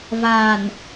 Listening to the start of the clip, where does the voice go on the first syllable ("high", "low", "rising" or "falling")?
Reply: low